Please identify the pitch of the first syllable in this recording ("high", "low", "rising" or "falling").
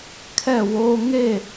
falling